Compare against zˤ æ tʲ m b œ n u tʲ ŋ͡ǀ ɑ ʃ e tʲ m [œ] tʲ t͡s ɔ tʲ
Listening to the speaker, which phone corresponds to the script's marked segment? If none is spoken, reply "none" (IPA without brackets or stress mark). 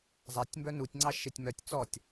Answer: œ